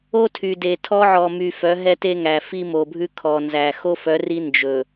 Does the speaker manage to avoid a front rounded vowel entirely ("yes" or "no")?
no